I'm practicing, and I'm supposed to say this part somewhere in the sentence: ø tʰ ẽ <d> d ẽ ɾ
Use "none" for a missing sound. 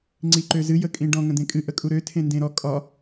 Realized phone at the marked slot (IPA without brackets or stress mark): n